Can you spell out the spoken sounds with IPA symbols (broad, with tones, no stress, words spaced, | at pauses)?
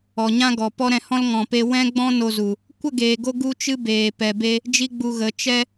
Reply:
ɔ˨ɲã˦ɡɔ˨ pɔ˦ɾɛ̃˧hɔ̃˦l ŋɔ̃˨pe˧ wɛ̃˦ɡ͡bɔ̃˦ no˧zu˨ | kʷə˦˨ɡeː˨ɡo˧ ɡu˦t͡ʃɨ˦beː˨ pɛ˨be˧ | d͡ʒi˦ɡ͡bu˧ɣə˨˦ t͡ʃɛ˧